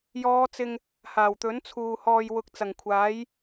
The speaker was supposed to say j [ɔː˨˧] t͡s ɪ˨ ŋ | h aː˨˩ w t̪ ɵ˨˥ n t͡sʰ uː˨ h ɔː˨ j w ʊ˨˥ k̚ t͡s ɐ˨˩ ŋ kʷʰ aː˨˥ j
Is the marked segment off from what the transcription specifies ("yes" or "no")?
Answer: no